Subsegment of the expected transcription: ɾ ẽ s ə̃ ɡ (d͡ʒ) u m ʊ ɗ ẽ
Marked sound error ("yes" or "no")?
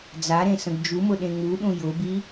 no